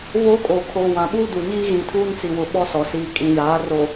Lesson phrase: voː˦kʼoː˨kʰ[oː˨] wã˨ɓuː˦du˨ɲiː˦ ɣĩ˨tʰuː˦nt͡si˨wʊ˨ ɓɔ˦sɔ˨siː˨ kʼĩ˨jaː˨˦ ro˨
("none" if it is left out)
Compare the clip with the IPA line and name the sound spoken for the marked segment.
oː˨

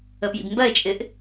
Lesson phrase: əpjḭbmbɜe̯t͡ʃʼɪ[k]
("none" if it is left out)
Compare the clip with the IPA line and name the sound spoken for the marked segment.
ʔ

